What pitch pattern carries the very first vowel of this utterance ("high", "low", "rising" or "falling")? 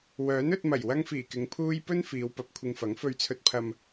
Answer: rising